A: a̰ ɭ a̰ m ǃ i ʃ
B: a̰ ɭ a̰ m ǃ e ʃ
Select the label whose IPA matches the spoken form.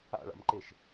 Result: B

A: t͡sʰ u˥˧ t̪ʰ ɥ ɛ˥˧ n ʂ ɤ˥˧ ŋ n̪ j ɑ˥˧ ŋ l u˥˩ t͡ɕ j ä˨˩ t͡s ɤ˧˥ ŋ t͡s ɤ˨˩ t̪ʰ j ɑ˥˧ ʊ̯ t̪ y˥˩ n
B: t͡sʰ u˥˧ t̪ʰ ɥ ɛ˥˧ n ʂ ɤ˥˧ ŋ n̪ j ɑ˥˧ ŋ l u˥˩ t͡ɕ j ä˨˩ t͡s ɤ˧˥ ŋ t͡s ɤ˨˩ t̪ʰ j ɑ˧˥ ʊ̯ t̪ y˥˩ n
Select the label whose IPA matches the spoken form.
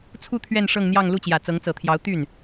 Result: B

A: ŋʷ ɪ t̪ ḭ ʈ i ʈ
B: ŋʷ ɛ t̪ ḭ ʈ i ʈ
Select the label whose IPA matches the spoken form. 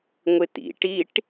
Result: A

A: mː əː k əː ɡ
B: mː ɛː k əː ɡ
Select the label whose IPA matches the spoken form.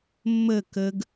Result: A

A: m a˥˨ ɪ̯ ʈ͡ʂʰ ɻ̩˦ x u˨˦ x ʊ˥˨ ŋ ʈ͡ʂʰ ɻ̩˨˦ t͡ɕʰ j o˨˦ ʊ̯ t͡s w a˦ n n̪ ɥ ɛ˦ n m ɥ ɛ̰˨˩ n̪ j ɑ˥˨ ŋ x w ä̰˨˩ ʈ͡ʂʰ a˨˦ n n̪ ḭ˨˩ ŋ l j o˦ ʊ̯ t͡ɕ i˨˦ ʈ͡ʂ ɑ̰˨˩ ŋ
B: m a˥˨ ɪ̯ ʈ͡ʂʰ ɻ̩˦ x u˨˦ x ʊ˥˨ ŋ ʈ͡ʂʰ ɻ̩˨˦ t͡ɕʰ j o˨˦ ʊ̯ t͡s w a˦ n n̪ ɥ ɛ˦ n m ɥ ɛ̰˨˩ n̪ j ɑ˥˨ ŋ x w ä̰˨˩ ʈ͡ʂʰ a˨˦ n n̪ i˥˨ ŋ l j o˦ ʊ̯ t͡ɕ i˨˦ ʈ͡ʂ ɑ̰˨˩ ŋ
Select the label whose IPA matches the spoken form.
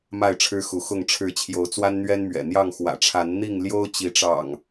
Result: B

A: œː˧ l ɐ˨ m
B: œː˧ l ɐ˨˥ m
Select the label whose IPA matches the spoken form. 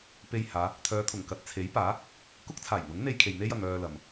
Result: A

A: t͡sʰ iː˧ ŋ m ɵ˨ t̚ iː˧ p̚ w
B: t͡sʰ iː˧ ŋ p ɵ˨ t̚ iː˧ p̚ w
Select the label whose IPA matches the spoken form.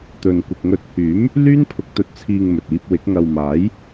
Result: A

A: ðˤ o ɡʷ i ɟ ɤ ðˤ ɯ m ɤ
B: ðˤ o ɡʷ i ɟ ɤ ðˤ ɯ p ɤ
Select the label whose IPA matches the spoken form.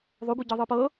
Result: B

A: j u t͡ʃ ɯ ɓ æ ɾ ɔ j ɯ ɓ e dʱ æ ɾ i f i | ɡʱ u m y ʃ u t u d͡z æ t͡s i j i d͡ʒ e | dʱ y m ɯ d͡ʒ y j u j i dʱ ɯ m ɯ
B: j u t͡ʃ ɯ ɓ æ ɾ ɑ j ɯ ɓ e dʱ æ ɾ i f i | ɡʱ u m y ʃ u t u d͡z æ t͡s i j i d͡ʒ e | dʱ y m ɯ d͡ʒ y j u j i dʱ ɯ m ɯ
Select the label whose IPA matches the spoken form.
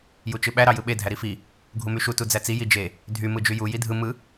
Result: B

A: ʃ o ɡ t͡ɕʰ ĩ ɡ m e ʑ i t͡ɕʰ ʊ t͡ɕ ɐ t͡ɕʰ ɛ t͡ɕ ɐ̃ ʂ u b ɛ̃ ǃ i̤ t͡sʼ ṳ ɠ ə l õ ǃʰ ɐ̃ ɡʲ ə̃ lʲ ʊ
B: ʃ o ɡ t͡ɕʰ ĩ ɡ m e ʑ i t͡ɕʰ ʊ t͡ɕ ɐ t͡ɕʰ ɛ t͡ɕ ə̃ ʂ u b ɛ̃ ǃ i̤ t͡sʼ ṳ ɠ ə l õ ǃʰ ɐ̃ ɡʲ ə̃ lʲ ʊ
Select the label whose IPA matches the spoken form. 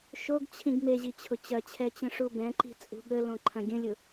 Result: B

